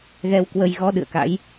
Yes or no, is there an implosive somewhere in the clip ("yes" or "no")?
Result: yes